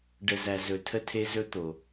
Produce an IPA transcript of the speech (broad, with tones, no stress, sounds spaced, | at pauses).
ɖ ə˨ z æ˨ z ɵ˨ tʰ ə˦ tʰ e˦ z ɵ˦ t̪ o˨